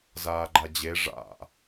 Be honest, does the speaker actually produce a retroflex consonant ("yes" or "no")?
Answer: yes